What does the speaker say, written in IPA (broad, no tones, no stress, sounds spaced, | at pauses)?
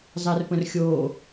zˤ ɛ r p ə̃ r xʲ o